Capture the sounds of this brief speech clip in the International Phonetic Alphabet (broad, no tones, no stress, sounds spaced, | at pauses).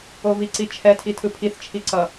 o v i ǀ i t͡ʃʰ ɛ tʰ i tʰ ɯ pʰ i θ t͡ʃʰ i ǀ ʌ